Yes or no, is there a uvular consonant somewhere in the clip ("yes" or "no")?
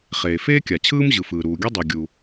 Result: yes